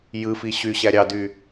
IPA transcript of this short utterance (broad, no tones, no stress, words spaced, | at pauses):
jɯfi ɕyɕæ ɾʲɑdy